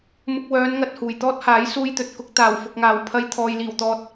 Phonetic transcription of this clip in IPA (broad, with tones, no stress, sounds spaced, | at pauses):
m ʊ˧ k̚ w œː˨˧ n ŋ ɐ˨ t̚ h uː˨˩ j t̪ ɔː˥ t̚ h aː˨˥ j s uː˧ j t̪ ɵ˨ t̚ k ʊ˧ k̚ t̪ aː˨˩ w f ʊ˨ k̚ ŋ aː˨˩ w pʰ ɐ˧ j t̪ʰ ɔː˨ j l iː˨˩ w t̪ ɔː˨ t̚